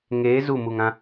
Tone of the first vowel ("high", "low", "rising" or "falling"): rising